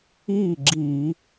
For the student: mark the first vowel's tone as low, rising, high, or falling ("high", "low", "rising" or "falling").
falling